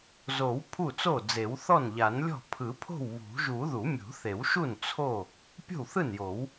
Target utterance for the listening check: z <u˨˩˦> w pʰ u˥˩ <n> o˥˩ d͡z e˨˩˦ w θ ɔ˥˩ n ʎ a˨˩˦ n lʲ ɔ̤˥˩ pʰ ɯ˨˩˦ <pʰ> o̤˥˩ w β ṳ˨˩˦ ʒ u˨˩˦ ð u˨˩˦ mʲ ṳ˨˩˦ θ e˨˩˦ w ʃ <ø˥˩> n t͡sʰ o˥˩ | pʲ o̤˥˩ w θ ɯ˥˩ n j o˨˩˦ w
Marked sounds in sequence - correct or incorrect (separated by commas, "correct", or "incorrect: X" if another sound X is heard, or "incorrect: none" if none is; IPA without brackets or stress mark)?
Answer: incorrect: o˨˩˦, incorrect: t͡s, correct, incorrect: u˥˩